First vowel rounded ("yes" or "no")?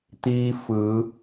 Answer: no